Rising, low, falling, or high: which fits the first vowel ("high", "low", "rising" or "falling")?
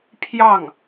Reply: falling